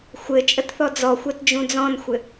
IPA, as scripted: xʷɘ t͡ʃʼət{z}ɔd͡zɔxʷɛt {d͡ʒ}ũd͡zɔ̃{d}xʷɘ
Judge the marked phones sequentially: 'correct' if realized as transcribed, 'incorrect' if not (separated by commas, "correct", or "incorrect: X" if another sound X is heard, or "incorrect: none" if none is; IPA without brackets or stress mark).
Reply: incorrect: θ, correct, incorrect: n